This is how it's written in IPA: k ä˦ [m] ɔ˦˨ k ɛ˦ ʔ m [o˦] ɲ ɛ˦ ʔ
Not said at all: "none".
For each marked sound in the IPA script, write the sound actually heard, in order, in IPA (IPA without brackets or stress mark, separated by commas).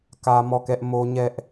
m, o˦